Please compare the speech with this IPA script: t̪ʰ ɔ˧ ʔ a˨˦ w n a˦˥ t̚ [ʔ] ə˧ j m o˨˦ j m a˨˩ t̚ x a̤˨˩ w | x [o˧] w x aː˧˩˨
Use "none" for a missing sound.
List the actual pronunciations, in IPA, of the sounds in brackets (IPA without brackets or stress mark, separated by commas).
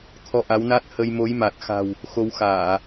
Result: h, o˧